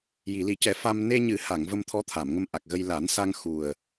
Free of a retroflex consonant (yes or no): yes